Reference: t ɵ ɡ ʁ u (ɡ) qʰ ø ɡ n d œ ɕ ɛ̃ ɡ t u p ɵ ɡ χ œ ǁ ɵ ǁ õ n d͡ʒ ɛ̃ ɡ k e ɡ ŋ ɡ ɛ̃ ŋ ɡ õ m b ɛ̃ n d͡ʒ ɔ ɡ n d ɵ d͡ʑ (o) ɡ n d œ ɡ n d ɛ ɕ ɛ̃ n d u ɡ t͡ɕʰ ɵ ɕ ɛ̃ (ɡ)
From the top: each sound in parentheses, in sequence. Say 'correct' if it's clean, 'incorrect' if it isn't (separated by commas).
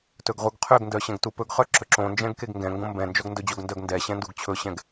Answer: correct, correct, correct